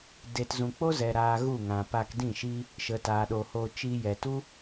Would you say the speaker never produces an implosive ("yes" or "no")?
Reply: no